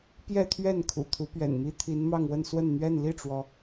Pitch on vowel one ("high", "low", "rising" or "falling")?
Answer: falling